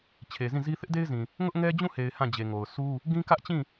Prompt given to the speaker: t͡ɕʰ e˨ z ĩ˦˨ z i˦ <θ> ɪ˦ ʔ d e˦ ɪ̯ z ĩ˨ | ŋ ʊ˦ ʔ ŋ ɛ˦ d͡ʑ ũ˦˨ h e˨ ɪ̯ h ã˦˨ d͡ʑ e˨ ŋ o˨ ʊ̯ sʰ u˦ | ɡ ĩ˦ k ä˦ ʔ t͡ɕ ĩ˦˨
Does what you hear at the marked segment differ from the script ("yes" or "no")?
no